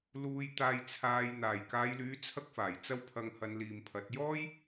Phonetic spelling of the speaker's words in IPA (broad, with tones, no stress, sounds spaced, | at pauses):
l uː˨ j t̪ aː˨ j t͡sʰ aː˨ j n̪ aː˨˩ j k aː˨˧ j l yː˨˥ t͡sʰ ɐ˥ k̚ f aː˨˩ j t͡s ɐ˥ w pʰ ɐ˧ ŋ h ɐ˨˧ n l iː˨ m pʰ ɐ˨˥ t̚ j ɔː˥ j